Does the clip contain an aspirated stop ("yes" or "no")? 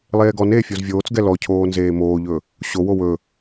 yes